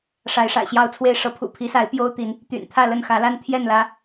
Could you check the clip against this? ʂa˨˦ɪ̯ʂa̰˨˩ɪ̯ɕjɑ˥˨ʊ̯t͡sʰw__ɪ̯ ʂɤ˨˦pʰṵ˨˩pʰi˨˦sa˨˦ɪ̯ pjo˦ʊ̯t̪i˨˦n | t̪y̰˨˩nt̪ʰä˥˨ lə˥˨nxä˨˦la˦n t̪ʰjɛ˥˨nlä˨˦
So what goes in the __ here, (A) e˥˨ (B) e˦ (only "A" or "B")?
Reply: A